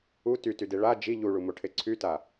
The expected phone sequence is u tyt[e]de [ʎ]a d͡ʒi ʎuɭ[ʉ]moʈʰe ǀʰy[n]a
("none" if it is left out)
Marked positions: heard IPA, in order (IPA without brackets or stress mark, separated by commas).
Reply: y, ɭ, u, t